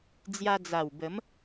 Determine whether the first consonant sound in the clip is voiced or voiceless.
voiced